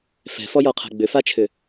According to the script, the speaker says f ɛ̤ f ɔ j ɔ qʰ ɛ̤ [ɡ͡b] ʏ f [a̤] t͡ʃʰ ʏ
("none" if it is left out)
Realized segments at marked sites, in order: ɡ͡b, a

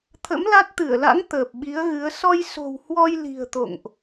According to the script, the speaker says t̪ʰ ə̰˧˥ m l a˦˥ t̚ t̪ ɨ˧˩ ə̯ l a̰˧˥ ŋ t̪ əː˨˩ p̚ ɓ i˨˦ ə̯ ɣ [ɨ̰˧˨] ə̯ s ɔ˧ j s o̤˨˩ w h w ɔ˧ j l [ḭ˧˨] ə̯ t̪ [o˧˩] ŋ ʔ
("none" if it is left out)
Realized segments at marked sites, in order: ɨ˨˦, i̤˨˩, o̰˧˨

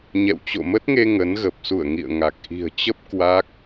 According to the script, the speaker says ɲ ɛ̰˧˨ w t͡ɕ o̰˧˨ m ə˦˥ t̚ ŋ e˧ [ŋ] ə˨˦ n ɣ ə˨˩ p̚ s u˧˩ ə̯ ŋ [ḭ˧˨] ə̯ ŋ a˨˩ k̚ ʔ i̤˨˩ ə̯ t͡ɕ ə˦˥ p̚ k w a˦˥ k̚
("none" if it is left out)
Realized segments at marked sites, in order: ŋ, ḭ˧˨

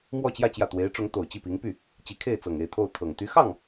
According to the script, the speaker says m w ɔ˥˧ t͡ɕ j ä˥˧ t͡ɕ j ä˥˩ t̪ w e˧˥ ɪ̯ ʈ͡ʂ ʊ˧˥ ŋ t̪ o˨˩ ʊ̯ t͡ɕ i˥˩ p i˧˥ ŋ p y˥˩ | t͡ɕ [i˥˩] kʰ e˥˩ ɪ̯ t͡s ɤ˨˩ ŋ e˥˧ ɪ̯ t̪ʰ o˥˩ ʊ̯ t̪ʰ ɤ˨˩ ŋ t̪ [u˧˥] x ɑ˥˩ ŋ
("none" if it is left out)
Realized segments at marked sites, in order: i˧˥, y˧˥

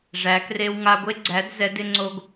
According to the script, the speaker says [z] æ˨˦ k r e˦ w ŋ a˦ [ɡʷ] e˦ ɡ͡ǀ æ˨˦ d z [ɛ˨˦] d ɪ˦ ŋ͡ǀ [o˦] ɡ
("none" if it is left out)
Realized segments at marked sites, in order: ʐ, ɡʷ, ɛ˨˦, o˦

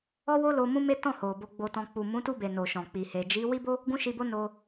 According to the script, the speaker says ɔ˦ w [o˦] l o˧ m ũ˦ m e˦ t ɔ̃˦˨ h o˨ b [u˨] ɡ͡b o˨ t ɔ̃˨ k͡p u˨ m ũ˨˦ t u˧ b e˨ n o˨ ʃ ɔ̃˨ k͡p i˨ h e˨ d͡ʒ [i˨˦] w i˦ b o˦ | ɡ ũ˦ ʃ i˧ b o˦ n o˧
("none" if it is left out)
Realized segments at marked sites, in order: o˦, o˨, i˨˦

